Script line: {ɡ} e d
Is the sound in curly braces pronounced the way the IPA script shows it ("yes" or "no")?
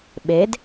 no